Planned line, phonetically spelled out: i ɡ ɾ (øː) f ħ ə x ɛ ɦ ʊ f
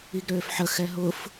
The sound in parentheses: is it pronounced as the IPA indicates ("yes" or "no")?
yes